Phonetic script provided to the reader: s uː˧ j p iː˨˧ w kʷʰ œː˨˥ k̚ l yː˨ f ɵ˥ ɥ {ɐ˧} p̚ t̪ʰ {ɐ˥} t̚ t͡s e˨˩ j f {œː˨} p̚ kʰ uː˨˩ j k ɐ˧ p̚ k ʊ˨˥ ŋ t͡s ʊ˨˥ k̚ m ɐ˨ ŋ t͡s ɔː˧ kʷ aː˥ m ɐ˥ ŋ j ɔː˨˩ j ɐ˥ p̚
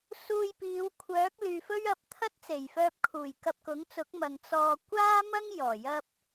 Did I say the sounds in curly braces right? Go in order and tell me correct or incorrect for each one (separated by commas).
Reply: correct, correct, incorrect